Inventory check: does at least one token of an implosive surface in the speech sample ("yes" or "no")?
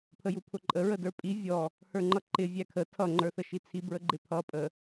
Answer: no